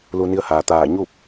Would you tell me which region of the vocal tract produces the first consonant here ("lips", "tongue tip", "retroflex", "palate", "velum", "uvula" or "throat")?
tongue tip